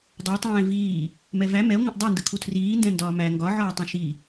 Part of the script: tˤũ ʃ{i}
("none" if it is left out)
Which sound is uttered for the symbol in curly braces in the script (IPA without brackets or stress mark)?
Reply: i